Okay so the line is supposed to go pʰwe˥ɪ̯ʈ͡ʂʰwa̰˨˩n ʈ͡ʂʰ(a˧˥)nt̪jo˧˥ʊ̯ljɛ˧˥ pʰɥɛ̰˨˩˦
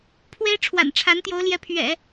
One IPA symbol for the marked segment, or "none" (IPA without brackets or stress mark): a˧˥